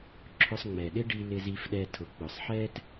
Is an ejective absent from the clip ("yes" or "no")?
yes